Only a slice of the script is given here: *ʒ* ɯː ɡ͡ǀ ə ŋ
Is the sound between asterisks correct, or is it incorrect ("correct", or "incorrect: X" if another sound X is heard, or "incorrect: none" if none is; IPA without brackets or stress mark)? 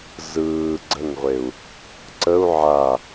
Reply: incorrect: z